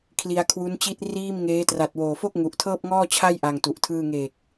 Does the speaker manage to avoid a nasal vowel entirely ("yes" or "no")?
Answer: yes